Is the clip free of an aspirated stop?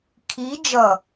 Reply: no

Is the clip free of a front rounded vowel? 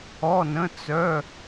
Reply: no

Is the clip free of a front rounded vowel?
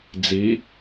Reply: yes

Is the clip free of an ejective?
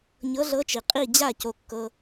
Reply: no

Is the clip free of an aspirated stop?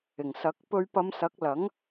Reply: yes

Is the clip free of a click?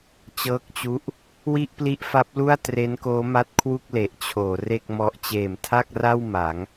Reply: yes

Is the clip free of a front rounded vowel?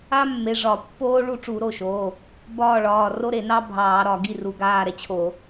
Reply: yes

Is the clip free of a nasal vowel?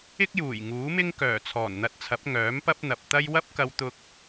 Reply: yes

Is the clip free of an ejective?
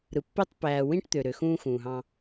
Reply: yes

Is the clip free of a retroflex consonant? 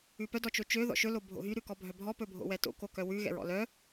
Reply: yes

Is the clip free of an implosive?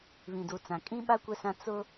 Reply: no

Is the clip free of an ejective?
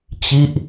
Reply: yes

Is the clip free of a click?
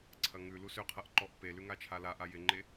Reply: no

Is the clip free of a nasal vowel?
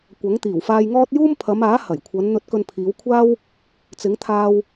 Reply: yes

